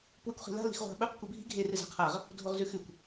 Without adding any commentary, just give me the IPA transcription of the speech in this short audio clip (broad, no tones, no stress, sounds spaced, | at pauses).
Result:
p w ɨ kʷ χ i̤ l a̤ l i̤ x ʁʷ a̤ ɓ ɵ q kʷ e bʱ i̤ ɡʱ e r ɨ z a̤ qʰ a ʁ | dʱ o ʁ z ʉ x ʉ kʷ